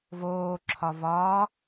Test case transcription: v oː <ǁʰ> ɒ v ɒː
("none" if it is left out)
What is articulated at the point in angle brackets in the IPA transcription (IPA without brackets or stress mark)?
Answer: ǁʰ